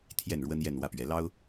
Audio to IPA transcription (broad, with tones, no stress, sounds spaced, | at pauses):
t̪ʰ j ɛ˥˩ n ɻ w ə˥ n j ɛ˥˧ n w ä˥˩ p ɥ ɛ˧˥ l ɑ˥ ʊ̯